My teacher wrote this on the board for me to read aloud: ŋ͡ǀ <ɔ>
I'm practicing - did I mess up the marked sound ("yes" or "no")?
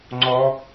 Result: no